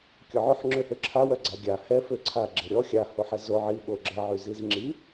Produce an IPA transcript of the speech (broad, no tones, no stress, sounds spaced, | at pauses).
kʲ ɔ ʕ o ħ ŋ͡ǁ ø h ø ǁʰ a w œ ɡ͡ǀ a ɡʲ a h ɛ f ø ǀʰ a ɡ͡ǁ e ɾʲ ɔ xʲ a h o ħ ɛ z o ʕ i ɓ o ɡ͡ǁ ə ʕ y z i z ŋ͡ǁ i